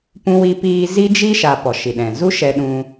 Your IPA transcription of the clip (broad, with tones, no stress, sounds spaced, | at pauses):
p ũ˧ w i˧ p iː˧ z i˦ d͡ʒ i˦ ʃ a˨ p ɔ˨ ʃ i˨ ɗ ɛ̃˨ z u˦ ʃ ɛ˧ ɗ ũ˧